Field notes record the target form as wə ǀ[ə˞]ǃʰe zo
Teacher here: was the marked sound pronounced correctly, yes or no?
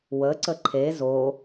no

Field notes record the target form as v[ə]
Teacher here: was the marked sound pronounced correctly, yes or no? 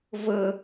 yes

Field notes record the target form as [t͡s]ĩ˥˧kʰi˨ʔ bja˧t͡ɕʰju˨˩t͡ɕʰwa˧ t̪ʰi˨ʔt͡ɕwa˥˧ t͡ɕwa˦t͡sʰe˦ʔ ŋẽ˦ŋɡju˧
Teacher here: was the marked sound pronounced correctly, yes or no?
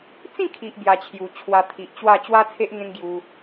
yes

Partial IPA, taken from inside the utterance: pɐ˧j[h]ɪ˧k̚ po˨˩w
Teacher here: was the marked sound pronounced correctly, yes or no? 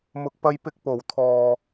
no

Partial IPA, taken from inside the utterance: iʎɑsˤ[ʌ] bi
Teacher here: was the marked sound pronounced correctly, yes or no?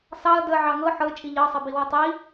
yes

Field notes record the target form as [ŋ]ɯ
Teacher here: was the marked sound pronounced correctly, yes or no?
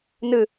no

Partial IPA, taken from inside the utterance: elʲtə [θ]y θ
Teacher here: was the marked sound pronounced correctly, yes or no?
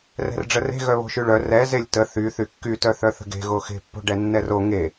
yes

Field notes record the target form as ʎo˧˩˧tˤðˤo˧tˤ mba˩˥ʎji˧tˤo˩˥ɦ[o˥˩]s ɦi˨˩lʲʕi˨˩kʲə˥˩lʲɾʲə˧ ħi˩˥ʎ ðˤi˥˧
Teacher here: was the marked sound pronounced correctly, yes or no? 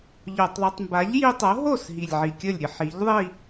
yes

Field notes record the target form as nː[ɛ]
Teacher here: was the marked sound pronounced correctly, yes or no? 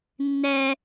yes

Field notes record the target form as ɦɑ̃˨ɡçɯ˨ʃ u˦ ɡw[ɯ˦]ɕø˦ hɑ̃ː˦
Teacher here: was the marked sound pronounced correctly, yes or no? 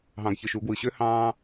no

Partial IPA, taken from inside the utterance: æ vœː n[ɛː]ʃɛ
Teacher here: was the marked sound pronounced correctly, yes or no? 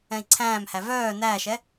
no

